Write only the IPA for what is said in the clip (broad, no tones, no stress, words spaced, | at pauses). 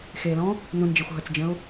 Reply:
xelɔ̃ | nũnd͡ʒexʷ ɦət͡sd͡ʒə̃ʊ̯